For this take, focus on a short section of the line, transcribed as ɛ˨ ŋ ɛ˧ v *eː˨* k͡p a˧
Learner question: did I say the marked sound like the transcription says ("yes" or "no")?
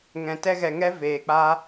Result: yes